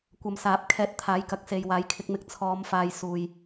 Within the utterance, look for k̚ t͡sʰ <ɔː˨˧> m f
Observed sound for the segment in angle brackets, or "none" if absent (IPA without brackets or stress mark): ɔː˨˧